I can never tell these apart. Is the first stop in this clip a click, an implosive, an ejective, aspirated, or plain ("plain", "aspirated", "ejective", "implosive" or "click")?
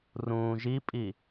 ejective